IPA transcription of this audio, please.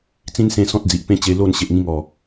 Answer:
t͡sĩ˦nsẽ˧ sɔ̃˦t̚d͡zi˨ʔpẽ˦t͡ɕe˧ lo˥˧n ɕe˨ʔŋĩ˧ŋɔ˨˩

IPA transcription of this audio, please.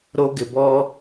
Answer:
ɾo˦ɡɪ˧ bɔ˦

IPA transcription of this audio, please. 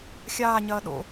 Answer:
xʲaːɲɐː ɗo̰

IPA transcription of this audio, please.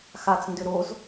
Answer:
xat͡s ndʏɾoz

